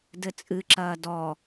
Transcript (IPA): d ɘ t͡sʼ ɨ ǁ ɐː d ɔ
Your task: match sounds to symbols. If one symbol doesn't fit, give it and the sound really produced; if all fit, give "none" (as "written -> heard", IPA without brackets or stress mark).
none